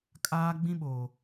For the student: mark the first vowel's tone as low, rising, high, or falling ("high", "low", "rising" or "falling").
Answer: high